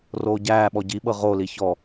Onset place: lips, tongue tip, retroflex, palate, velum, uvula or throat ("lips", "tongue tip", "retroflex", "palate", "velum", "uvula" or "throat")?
tongue tip